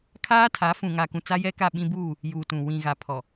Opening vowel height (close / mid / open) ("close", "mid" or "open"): open